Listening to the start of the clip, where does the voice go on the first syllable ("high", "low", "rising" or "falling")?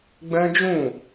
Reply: high